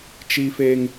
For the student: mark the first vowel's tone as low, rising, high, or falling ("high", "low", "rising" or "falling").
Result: high